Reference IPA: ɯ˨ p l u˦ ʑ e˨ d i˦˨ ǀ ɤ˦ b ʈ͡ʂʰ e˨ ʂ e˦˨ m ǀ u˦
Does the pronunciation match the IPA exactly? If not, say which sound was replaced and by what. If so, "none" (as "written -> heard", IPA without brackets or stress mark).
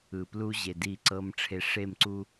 b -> m